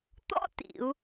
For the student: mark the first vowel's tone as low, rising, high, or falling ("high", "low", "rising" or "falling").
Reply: high